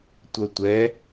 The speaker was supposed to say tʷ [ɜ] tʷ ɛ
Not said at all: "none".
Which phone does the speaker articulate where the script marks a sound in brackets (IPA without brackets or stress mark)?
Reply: ɜ